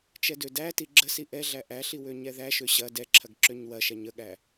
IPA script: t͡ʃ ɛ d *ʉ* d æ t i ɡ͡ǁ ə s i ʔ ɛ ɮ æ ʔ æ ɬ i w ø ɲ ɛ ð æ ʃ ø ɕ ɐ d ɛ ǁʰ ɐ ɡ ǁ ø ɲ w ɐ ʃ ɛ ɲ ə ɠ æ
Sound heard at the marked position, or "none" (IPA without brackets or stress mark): ø